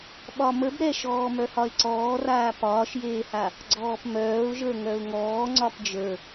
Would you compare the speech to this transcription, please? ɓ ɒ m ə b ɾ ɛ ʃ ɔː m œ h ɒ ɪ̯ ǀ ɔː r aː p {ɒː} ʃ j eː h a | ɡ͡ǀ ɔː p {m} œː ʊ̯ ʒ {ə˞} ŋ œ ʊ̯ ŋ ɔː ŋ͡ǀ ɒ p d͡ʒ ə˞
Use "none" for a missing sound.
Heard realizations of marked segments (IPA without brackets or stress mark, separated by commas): ɒː, m, ə˞